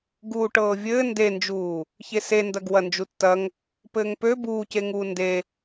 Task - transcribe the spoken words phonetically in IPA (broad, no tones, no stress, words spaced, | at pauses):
ɡuːʈɤːvʲɘː ndend͡ʒuː | çesendɐɡ wɐnd͡ʒutːɐŋ | pɘːŋpø buːceŋuː nde